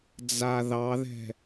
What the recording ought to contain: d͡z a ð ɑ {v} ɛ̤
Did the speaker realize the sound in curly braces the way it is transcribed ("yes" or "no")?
no